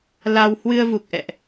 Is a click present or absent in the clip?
absent